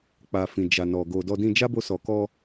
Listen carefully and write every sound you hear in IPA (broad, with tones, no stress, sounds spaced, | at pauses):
k͡p a˨ f ĩ˨ d͡ʒ a˨ n ɔ˨ ɡ o˨ d ɔ˧ d ĩ˧ d͡ʒ a˦ b o˧ s ɔ˨ k ɔ˧